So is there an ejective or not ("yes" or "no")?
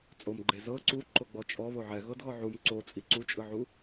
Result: yes